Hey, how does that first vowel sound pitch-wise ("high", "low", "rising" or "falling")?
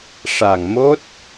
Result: low